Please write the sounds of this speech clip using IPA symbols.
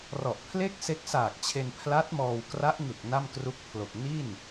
r ɔ˨˩ ʔ pʰ l e˥˩ k̚ s e˦˥ k̚ s aː˨˩ k̚ t͡ɕʰ e˧ n pʰ l a˦˥ t̚ m ɔː˧ w k r a˦˥ ʔ ŋ ɯ˨˩ k̚ n a˥˩ m k r u˦˥ k̚ pʰ l o˨˩ k̚ n i˥˩ n

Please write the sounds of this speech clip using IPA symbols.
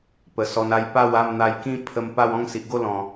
p ə˨˩ s ɔ˧ n a˥˧ j p a˥˧ w a˥˧ m n̪ a˧ j k ĩ˥˧ pʰ ə˧ m p a˥˧ w ɔ̃˥˧ ŋ s i˨ ʔ ɡ o˥˧ l ɔ̃˨˩

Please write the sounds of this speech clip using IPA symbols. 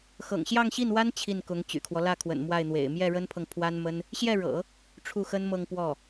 x ɤ̰˨˩ ŋ ɕ j ɑ˥˧ ŋ ɕ i˥˩ n w a˥ n t͡ɕʰ i˥˩ n k ʊ˧˥ ŋ t͡ɕ y̰˨˩ kʰ w ɔ˦ l ä˥˩ kʰ w ə̰˨˩ n m w a˥˩ ɪ̯ n̪ w ḛ˨˩ ɪ̯ m j ɛ˥˩ ɻ ə˥ n pʰ ɤ˨ ŋ pʰ w a˥ n m ə˥ n | ɕ j ɛ˥˩ ɻ ɤ̰˨˩˦ | ʈ͡ʂʰ u˥˩ x ə˥ n m ɤ˥˧ ŋ p w ɔ˥˩

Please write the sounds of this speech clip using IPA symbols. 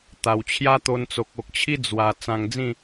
t̪ a˨˩ w t͡ɕʰ j a˦ t̪ o˧ n t͡s o˨ k̚ o˨ k̚ t͡ɕʰ i˦ d͡z w a˧ t͡s ã˧ ŋ d͡z ĩ˥˧

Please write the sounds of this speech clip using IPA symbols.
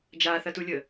d͡ʒ aː θ ɐ t u lʲ əː

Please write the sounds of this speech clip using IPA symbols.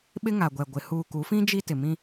ɓ ɪ˦ ŋ a˨ ɡʷ ɛ˨ ɡʷ ɪ˨ h uː˨ k u˨˦ f ĩ˦ d͡ʒ i˦ t ɪ˨ m ĩ˦

